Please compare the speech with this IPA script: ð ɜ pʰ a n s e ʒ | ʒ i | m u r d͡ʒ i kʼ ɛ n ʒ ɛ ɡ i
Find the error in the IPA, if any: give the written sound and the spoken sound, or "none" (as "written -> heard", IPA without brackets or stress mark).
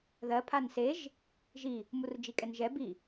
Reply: ɡ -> b